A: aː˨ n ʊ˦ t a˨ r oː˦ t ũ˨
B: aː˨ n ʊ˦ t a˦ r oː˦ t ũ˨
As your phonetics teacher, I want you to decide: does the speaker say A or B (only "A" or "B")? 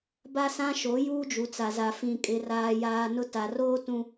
A